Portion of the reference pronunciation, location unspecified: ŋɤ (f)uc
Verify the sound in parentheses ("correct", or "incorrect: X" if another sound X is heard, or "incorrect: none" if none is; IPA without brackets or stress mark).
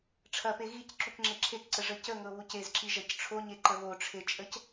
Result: incorrect: β